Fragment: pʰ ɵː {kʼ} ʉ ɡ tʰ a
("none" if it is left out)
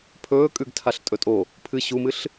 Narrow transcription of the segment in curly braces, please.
kʼ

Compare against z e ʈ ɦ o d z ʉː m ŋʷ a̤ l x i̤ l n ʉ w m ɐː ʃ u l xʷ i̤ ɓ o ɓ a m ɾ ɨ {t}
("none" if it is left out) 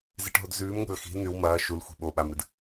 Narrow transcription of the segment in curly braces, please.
d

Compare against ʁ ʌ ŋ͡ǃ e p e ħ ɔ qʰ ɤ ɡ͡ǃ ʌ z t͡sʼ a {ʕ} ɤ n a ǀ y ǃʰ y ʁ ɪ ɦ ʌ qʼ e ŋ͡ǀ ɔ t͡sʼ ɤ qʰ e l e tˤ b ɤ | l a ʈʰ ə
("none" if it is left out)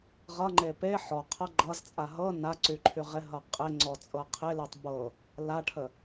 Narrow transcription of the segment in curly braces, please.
ɦ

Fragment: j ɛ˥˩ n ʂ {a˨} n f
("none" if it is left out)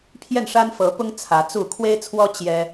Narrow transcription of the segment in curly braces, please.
a˥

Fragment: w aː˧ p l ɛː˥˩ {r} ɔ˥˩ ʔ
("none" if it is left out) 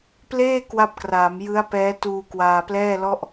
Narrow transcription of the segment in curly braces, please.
l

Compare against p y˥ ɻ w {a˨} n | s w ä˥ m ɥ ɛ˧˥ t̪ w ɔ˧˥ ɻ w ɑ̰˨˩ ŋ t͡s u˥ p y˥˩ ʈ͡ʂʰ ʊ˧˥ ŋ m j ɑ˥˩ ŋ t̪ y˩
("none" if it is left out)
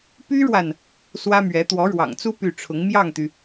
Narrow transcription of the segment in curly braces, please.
a˨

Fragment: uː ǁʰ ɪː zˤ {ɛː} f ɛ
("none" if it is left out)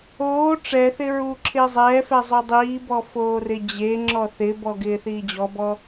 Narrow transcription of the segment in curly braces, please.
ɛː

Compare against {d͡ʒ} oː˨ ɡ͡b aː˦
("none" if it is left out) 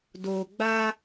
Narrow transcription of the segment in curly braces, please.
d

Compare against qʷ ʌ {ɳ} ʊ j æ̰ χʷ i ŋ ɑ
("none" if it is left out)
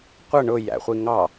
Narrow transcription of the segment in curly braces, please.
ɳ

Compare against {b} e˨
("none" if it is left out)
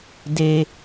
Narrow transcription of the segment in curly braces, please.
d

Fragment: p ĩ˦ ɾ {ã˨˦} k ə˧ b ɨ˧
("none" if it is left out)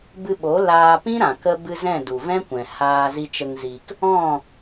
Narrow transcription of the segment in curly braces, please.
ã˨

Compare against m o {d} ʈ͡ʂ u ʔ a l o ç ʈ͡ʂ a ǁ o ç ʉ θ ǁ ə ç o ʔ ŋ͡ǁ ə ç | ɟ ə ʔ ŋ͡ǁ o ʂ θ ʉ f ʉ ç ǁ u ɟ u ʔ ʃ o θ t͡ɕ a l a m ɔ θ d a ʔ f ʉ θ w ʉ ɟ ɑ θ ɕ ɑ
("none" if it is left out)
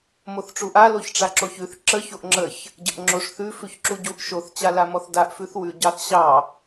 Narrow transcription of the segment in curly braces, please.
θ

